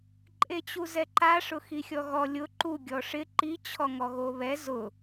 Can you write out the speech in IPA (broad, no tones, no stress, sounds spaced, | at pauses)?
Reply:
ǃʼ e t͡ɕ u z ɛ ǃ a ʂ ʊ x i xʲ ɔ ɣ ɔ lʲ ʊ ǃ u ɡʲ ɔ ʂ ɪ ǃ i t͡ɕʰ ɔ ŋ ɔ ɣ o β ɛ z ʊ